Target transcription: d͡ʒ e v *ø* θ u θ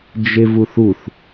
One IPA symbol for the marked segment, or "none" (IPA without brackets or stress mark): u